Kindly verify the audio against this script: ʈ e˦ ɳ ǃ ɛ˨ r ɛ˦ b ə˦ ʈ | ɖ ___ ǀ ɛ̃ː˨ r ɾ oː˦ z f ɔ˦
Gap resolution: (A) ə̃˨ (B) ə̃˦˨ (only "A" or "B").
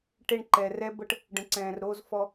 A